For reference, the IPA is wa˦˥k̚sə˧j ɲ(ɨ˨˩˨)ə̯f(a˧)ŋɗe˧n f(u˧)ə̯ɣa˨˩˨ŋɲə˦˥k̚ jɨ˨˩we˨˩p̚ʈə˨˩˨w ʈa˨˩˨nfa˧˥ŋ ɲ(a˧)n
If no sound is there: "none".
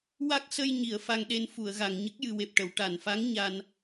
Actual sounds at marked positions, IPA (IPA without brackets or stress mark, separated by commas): i˨˩˨, a˧, u˨˩˨, a˧